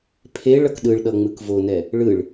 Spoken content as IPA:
pʰ e ɭ ʌ k ɗ ɯ ɭ ɗ ʌ ŋ͡m ɯ k v o n ɛ | ɭ ɯ ɭ

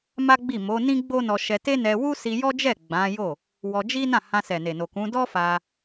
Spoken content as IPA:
m a˦ ɡ͡b i˦˨ m o˨˦ n ĩ˦ ɡ͡b o˦ n ɔ˧ ʃ ɛ˧ t e˦ n ɛ˧ w u˦ s i˧ j ɔ˦ d͡ʒ ɛ˦˨ ɡ͡b ã˨˦ j o˦˨ | w ɔ˧ d͡ʒ i˦ n ã˦˨ h ã˧ s ɛ˨ n e˨ n o˨ k ũ˨˦ d ɔ˦ f a˧

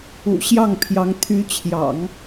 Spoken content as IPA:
ṵ˨˩ ɕ j ɑ˥˩ ŋ pʰ j ɑ˧˥ ŋ t̪ʰ y˧˥ t͡ɕʰ j ɑ̰˨˩˦ ŋ

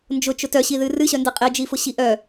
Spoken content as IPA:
n d͡ʒ ʊ t͡ʃ ʊ t œ ɕ i ð ɨ r ɨ ɕ œ n d ɨ qʼ i d͡ʒ i f ʊ ɕ i ʔ œ

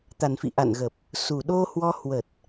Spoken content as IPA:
t̪ a˨˩ n f ḭ˧˨ ʔ a̰˧˨ n ɣ ə˨˩ p̚ | s u˨˩ ɗ o˧ h w ɔ˧ h w ə˨˩ t̚

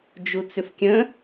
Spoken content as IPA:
d͡ʒ u t͡s ʏ f kʲ ə̃

